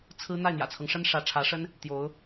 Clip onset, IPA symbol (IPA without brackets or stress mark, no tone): t͡sʰ